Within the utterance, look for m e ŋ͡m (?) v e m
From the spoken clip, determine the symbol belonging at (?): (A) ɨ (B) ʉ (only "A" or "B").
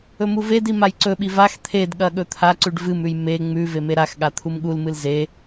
B